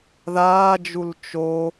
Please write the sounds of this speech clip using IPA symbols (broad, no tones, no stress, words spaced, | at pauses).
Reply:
ðaːd͡ʒul t͡ʃo